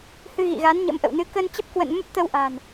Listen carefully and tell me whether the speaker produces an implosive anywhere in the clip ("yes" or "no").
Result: no